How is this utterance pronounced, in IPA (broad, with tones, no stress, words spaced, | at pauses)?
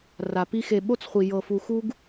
ra˨pi˦ xe˨ɓo˦t͡sχʷi˨ jɤ˨fu˨ xu˦ɡ